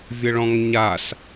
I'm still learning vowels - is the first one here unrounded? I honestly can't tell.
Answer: yes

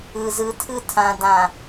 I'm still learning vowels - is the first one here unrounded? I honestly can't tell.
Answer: yes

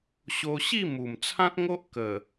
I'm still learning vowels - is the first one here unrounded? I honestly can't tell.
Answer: no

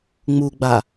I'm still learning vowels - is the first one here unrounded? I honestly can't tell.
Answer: no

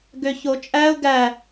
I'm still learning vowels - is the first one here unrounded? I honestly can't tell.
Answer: no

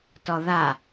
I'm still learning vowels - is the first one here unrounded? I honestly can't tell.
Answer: no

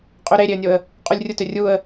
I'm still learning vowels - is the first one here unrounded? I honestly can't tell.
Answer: no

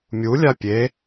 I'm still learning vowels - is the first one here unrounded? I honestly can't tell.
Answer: no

